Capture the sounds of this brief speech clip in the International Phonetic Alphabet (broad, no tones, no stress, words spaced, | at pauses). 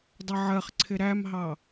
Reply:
dˤʌʕɜχǀʰɪ ɾæmɦɑ